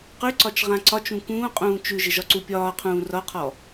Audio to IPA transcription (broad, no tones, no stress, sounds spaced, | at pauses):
q ʉ ǀ ɒ t͡ʃ ʁ ã ǀ ɒ t͡ʃ ũ k ũː qʼ ũː t͡ʃ ʉ ʒ ɪ ʒ ɒ ǀ u pʲ ɒː qʰ ũː r ɒ qʰ ɔ